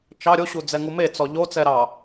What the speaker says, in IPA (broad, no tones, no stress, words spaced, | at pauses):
t͡ʃɑ ɾʲoɕud͡zɛŋu met͡sɔ ʎo t͡sɛɾɑ